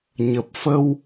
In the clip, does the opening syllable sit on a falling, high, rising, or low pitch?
low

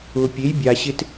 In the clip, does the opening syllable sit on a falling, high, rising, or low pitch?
low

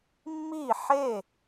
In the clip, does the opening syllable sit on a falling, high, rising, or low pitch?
falling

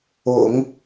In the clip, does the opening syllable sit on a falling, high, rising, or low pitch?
low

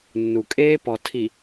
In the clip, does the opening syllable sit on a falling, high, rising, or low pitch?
low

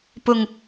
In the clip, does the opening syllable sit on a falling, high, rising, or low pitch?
low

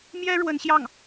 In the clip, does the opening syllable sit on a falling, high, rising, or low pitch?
high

